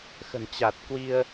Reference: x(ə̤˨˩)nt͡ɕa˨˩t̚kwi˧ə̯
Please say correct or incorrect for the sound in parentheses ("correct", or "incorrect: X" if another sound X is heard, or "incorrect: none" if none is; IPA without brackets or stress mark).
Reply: correct